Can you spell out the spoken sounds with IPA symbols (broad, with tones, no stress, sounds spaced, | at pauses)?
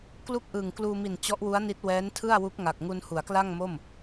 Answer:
k l u˥˩ k̚ ʔ ɯː˨˩ ŋ k l uː˧ m i˨˩ n t͡ɕ ɔ˦˥ ʔ w u˦˥ a̯ n i˦˥ t̚ w ɛː˦˥ n tʰ ɯ˥˩ a̯ w u˦˥ k̚ ŋ a˨˩ k̚ ŋ u˧ n h u˩˦ a̯ k l a˥˩ ŋ m o˥˩ m